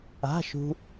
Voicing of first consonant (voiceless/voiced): voiceless